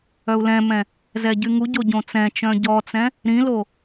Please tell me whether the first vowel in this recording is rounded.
yes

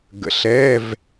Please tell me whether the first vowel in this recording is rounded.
no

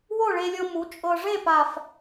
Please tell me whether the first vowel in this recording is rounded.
yes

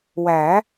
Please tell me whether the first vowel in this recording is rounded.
no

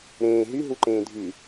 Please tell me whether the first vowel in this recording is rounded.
no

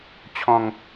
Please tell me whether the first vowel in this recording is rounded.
yes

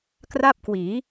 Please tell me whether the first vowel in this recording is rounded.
no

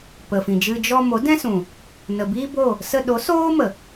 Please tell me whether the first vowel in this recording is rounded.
no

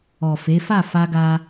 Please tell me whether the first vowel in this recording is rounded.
yes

